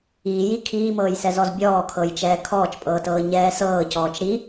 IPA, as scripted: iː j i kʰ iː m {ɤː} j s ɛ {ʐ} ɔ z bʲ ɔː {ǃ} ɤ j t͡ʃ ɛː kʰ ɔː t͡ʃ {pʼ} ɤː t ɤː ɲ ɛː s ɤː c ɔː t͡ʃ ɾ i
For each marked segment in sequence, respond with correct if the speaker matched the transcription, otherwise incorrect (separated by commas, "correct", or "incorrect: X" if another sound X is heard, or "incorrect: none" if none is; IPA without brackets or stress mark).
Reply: correct, incorrect: z, incorrect: kʰ, correct